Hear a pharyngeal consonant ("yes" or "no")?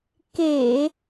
no